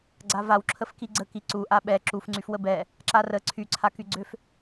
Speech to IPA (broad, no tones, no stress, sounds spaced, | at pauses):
ɡ͡ǀ a v a w ǁʰ ə f k i ɡ͡ǀ ə k i ǀ u ʔ a ɓ ɛ ǁ u f ŋ͡ǀ y f w ə b ɛ | ǁ a r ə ǀʰ y ǀʰ a k y ɡ͡ǀ ø f